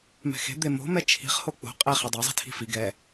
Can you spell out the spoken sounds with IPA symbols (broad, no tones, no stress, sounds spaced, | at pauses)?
m ɛ̤ x e̤ d̪ e m o̤ m ɛ t͡ʃʰ i̤ χ h o k͡p o̤ qʼ e χ ɛ dˤ a zˤ i̤ tʰ i̤ f i ɡ ɛ